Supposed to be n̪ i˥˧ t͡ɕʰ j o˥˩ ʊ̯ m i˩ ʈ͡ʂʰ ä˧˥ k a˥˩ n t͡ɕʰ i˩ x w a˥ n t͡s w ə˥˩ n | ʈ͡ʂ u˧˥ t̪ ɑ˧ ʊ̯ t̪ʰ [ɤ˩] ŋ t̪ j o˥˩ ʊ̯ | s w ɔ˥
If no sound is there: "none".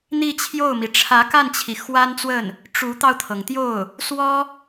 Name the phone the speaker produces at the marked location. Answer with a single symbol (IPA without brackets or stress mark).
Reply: ɤ˩